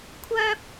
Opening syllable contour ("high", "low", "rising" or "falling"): high